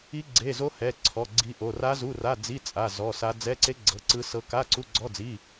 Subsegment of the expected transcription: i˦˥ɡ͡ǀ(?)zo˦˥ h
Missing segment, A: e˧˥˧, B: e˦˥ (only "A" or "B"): A